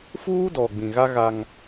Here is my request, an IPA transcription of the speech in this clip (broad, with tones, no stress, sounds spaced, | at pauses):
f uː˦ d ɔ˨ ɡ͡b ĩ˨ ɣ a˦ ɣ a˦ ŋ